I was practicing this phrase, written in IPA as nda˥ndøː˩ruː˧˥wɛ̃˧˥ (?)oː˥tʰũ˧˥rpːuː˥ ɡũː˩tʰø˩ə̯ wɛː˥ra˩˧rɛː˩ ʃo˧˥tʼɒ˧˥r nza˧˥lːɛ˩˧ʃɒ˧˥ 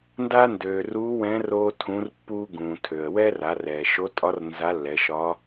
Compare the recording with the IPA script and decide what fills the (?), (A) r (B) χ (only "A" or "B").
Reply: A